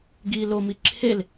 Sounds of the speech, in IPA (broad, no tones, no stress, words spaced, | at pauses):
ɡi lomi ǁʰel